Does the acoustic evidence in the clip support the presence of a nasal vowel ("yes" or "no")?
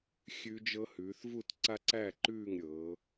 no